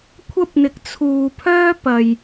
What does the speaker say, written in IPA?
kʷʰ ɐ˥ p̚ n̪ ɪ˨ k̚ t͡sʰ uː˨ pʰ œː˥ p ɐ˨ j

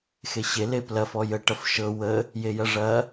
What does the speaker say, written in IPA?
x e ɕ e l e p l ɐ f ɔ j ə ʈ ɐ f ʃ ɤ w ə | j e j ɐ ʐ ɐ

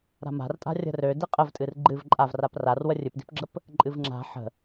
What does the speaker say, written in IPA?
ɾ a̤ m a̤ r tʼ a̤ rʲ ə̤ r ø d i qʼ ə v tʼ ɨ r ɡ͡ǃ ɨ v ǃʼ a v r a p r a r w ə rʲ ɨ p d i̤ p ɡ͡ǁ ə p | ǃʼ ɨ v ŋ͡ǁ a̤ ħ ə̤

